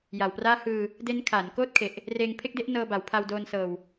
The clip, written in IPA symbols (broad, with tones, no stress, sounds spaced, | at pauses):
j a˨˩ w p r aː˥˩ h ɯː˧ | d e˦˥ n kʰ aː˩˦ n k oː˥˩ t̚ kʰ e˨˩ ʔ | r eː˧ ŋ pʰ e˥˩ k̚ d e˦˥ ʔ n ɤː˧ b a˨˩ w pʰ a˧ w d oː˧ n s ɤː˧ w